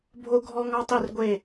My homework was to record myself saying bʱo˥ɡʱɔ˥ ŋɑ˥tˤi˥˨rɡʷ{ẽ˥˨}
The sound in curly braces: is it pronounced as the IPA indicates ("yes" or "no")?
no